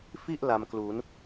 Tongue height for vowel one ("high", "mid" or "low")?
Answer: high